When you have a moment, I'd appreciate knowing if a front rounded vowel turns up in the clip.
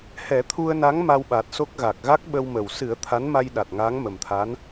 no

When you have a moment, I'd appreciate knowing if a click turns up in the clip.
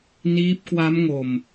no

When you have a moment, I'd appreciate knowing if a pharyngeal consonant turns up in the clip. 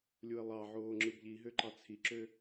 yes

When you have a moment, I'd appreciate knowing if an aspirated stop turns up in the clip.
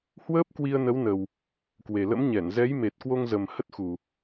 no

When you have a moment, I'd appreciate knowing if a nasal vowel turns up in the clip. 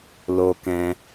yes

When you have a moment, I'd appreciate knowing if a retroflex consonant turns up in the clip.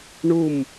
yes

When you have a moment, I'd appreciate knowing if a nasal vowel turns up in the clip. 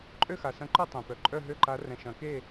yes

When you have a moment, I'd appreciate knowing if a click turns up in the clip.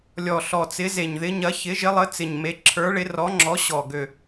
yes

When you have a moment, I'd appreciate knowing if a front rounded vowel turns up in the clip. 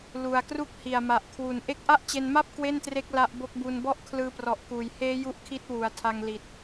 no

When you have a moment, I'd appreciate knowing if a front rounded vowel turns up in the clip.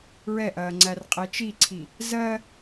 no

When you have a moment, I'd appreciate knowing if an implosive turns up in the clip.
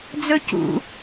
no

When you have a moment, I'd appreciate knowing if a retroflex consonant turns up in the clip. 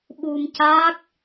no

